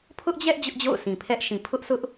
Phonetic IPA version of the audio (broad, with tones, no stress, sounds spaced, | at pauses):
pʰ ʊ˦ ʔ d͡ʑ ɛ˦ ʔ d͡ʑ ʊ˦ ʔ d͡ʑ o̰˦˨ ʊ̯ s ĩ˨ pʰ ɛ˦ ʔ ʃ ĩ˨ pʰ ʊ˦ ʔ s ʊ˦ ʔ